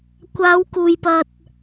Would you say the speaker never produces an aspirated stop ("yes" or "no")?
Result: yes